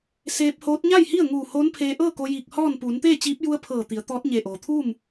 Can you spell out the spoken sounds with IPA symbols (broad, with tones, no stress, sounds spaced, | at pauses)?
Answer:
s eː˧ p̚ h oː˧˥ t̚ ɲ a˥˨ j h i˥˨ ə̯ ŋ uː˧˩ h oː˧˥ n pʰ eː˧ ʔ ɤː˥˨ k o˧ j iː˧˩ k̚ h ɔː˥˨ n p uː˩˧ n t̪ eː˥˨ t͡ɕ iː˧˥ p̚ j u˧ ə̯ pʰ ɤː˧˩ t̪ i˩˧ ə̯ t̪ ɔː˧˥ t̚ ɲ e˧˩ ʔ oː˩ t̪ʰ uː˥˨ m